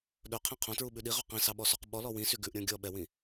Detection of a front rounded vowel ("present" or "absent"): present